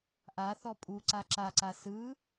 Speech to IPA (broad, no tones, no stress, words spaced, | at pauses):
ʔaθɔ pʼu ǀaǁaǀa sɯ